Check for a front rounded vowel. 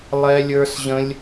absent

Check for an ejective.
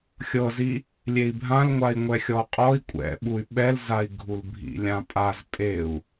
present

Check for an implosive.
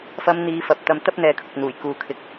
absent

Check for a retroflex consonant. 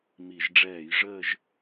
present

